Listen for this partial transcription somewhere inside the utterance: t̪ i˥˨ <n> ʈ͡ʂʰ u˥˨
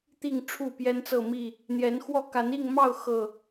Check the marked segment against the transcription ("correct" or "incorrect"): incorrect